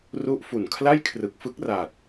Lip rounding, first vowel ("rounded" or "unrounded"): rounded